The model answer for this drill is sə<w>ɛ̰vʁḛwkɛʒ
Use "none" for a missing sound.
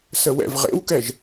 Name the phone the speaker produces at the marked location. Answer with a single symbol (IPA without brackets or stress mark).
w